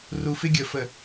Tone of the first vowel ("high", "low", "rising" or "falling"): low